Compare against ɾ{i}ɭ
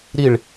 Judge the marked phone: correct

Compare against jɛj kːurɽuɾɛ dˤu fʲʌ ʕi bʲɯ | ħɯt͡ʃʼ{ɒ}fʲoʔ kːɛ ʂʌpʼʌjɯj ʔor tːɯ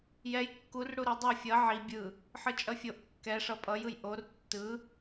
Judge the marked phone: incorrect: ʌ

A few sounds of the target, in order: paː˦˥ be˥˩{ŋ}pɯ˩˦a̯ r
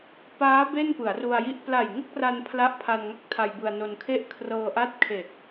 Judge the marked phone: incorrect: n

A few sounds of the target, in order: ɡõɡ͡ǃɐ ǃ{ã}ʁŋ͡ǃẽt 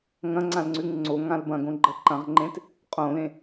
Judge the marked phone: incorrect: ɐ̃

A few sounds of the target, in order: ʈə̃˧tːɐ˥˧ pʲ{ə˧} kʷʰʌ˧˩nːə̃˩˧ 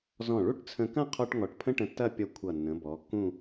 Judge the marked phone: incorrect: ʌ˧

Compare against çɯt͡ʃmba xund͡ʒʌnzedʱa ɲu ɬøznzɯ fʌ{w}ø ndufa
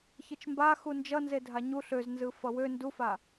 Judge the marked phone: correct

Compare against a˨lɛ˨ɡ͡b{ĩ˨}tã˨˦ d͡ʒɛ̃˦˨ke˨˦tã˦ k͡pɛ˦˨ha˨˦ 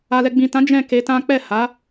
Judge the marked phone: correct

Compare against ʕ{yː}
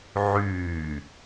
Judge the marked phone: correct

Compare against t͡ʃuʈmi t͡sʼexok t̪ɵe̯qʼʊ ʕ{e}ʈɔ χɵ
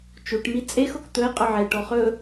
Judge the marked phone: correct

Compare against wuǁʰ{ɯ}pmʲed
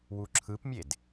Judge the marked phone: correct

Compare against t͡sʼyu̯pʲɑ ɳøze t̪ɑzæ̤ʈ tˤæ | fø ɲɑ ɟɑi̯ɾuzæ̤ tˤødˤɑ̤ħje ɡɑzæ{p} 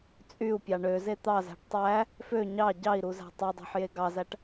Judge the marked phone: incorrect: ʈ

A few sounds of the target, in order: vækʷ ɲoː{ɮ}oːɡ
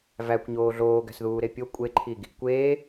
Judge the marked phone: correct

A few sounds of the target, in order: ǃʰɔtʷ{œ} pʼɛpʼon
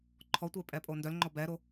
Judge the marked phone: incorrect: ɛ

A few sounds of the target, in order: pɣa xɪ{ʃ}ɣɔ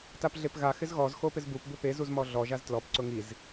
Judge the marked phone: incorrect: z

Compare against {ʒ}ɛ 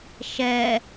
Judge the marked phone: incorrect: ʃ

